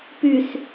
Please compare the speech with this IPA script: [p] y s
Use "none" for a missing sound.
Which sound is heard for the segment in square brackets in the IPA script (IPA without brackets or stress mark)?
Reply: p